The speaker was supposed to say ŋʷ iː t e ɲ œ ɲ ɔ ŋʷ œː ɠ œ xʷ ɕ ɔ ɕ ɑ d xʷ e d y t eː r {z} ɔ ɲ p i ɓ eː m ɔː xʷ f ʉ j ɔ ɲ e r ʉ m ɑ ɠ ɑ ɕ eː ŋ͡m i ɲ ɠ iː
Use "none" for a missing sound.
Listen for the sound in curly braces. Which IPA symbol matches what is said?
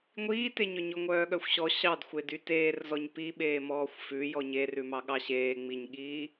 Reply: z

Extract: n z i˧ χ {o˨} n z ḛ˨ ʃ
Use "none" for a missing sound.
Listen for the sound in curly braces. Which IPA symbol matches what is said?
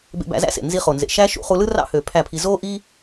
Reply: o˨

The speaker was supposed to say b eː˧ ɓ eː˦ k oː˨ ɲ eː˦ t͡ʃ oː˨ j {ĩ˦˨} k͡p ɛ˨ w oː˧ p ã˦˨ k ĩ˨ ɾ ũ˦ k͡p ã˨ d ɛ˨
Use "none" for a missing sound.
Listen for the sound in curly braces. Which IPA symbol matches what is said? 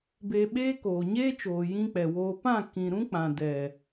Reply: ĩ˧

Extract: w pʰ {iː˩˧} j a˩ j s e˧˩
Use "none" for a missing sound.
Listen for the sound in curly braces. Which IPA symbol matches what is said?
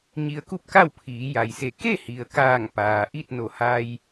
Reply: iː˩˧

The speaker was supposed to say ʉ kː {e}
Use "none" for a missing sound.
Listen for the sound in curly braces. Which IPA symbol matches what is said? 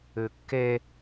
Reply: e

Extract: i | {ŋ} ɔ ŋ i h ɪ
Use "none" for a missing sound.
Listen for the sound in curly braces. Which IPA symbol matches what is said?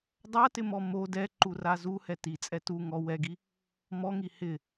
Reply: m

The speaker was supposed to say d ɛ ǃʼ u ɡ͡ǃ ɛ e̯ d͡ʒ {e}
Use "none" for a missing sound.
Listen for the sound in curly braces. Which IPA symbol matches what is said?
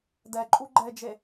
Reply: e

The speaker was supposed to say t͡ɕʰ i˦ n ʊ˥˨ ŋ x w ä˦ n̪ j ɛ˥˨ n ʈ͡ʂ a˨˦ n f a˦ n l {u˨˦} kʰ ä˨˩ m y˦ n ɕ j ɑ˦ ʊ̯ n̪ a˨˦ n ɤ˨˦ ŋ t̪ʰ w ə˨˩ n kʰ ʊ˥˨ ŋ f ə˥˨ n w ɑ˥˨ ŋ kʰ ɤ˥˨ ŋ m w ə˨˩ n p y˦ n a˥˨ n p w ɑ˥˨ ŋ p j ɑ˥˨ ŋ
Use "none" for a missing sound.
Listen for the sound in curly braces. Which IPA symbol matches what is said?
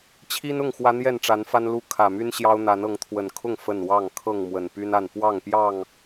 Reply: u˦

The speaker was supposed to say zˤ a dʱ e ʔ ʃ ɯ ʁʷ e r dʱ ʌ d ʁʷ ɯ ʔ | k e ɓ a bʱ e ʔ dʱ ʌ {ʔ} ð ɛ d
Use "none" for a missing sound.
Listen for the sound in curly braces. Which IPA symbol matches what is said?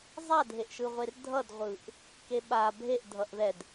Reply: ʔ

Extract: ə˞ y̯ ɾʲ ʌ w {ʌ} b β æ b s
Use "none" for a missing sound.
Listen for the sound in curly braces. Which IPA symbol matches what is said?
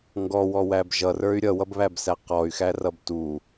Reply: ʌ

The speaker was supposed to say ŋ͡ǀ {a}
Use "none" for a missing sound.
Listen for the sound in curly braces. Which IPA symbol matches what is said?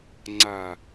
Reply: a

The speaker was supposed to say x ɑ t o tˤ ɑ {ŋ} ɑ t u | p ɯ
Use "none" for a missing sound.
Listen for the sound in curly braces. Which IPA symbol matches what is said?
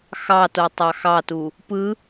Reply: x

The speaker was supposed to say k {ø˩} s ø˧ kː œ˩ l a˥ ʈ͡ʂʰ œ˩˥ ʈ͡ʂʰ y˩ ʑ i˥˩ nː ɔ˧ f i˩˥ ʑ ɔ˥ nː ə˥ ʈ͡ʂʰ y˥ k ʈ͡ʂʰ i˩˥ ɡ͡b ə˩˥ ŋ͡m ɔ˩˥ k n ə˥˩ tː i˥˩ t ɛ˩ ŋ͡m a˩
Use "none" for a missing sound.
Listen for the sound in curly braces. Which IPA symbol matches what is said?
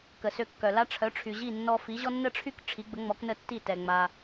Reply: ə˩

